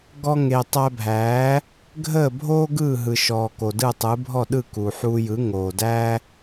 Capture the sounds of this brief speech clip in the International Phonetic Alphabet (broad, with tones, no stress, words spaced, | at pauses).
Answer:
ɡɔ˧ŋe˩ tˤæ˧bʱæː˩˥ | ɡʱəː˥˩bʱoː˥ ɡɯː˥˩ɦɯ˩ʃɔː˩ ko˩dɯ˥˩tˤɯ˩˥ bʱɔ˥˩ɗɯ˥˩ ku˩ħuː˧jɯ˩˥ ŋoː˩dæː˥